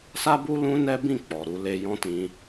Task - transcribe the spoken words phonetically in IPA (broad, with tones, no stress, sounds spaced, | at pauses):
s a˦ b u˦ l ũ˦ n ɛ˦ b ĩ˦˨ k͡p ɔ˨ ɾ u˧ l e˧ j ɔ̃˦ t ĩ˧